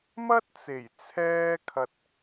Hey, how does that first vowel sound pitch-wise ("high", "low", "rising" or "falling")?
high